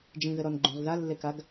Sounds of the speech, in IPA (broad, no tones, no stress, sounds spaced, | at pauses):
d͡ʒ ĩ ð ɘ ɾ ɔ n ɡ͡ǃ ũ ʁ ð a lː e k a ɡ